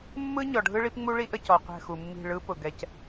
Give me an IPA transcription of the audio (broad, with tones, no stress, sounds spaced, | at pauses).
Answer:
mː ɯ˦ ɲ ɔ˨ ɖʱ ɯ˦ ɭ i˦ p ŋ͡m u˦ ɭ i˦ ʔ ə˦˨ c ɔ˨ qʷ ɛ̤˦˨ x u˨ mː i̤˦˨ ɭ ɯ˦ p ʊ˨ ɡ ɛ˦ c